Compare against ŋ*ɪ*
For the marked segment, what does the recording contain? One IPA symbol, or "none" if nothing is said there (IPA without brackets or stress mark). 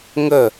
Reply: ə